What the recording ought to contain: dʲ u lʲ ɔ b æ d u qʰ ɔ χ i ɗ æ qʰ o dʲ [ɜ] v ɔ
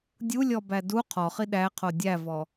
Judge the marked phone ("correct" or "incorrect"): incorrect